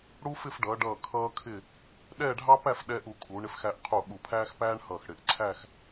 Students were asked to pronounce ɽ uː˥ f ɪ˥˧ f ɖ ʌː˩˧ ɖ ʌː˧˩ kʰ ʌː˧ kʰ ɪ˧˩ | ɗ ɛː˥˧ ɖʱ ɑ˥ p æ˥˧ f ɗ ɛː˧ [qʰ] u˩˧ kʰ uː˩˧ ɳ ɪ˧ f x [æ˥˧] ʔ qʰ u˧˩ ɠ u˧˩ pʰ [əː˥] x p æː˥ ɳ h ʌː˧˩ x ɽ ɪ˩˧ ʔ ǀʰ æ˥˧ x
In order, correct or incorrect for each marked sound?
incorrect: ʔ, incorrect: æ˧, incorrect: æː˥

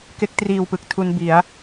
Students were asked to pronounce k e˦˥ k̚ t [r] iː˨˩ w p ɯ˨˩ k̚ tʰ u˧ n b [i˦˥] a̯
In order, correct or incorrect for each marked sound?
correct, incorrect: i˩˦

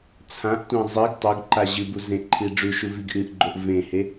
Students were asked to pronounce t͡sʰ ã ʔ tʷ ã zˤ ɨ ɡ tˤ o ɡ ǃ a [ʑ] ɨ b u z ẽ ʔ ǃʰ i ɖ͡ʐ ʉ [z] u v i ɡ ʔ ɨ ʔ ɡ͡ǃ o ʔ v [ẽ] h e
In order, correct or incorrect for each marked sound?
correct, incorrect: ʃ, correct

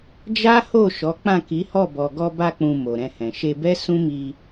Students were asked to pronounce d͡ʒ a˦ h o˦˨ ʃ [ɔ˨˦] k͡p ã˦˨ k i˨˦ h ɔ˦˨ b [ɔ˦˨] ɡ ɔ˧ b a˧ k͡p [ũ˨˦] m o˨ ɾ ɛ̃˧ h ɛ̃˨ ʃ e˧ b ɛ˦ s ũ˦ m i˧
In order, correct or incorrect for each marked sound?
correct, incorrect: ɔ˨, incorrect: ũ˨

